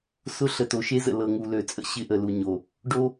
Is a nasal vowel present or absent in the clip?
absent